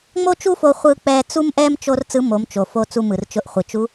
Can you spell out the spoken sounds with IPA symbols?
ŋ͡mo˥t͡ʃu˥fo˧ χʷɯ˧k͡pɛ˧ t͡su˥mʔɛ˥m t͡ʃo˥r t͡sɯ˧˥mo˩˧m t͡ʃo˩fo˧ t͡su˧mɯ˩rt͡ʃʊ˧ʔχʷɯ˩ t͡ʃu˧˥

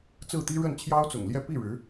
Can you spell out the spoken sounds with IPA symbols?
t͡sɹ̩˥˩t̪i˥ ɻə˥˩nt͡ɕʰjɑ˥ʊ̯t͡sʊ̰˨˩ŋljɛ˥ pi˥˩ ɻɻ̩˧˥

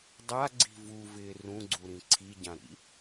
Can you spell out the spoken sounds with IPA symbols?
dˤaɡ͡ǀi̤ vuvɪː rũɡ͡ǀuɾĩ ǀʰiɟãɾḭ

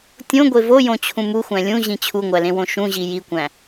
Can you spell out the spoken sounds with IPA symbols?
tʲõɡʷe vojõt͡ɕʰũ muxʷæ̃ lʲũʑĩ t͡ɕʰuŋʷælẽwõ ʃũʑi jikʷæ̃

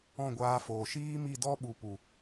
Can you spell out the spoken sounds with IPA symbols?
ɔ̃˦˨ɡʷaː˧foː˨ ʃiː˦mi˦˨dɔ˦ ɓu˨pu˨

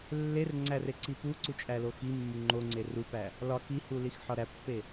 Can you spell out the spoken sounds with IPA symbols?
lːerŋ͡ǀæ reǀipuǀu t͡ʃʼæloximːu ŋ͡ǃoŋ͡ǀe rupæ | lɒ kihu lixħɒɾæpːe

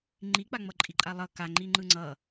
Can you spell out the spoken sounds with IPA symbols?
ŋ͡ǃik͡paŋ͡mʌ ǃʼiǃʼalˠʌ kaŋ͡ǃi ŋ͡ǃɯŋ͡ǀʌ

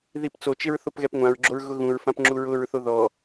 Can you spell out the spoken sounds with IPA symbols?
ðipt͡sot͡ʃɪɹ θopɣɛpŋʷãɹɡ͡ǁoɹ ɣʊɣũɹfãp ŋ͡ǁuɹʊɹθo ðɔ

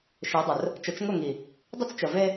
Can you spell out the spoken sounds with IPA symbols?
ʃe˨˦dˤʊ˨r | t͡ʃə˨˦t͡ʃŋʊ˦˨ŋi˨ | dˤʊ˦t͡st͡ʃə˨ve˦

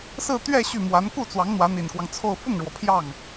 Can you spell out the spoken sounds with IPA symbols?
sɹ̩˥˧t̪ɥɛ˥˧ ɕy˥˩mwa˧˥n ku˥˩t͡swɑ˧˥ŋ n̪wä˧˥n̪i˨˩nkwɑ˦ŋt͡sʰo˥˧ʊ̯ fʊ˥˩ŋɻwɔ˩ pʰjɑ˥˩ŋ

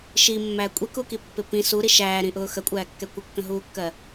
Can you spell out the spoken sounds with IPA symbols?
ʃimːæ kʷʼikukipːɪ pĩ suɾi ʃæːɾĩʔʊː xəkʷʼæːkːɛ kʷɪkːə̃ɦuːkːɜ

